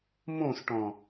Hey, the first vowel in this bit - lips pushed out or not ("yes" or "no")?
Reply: yes